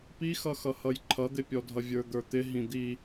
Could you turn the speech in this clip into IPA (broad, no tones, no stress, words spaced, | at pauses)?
pixʌxʌhʌj ǃʰʌd̪ɪpʲɔdʱʌ vʲə˞d̪ə˞t̪ɪ ɦĩd̪i